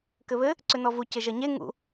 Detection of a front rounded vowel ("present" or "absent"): present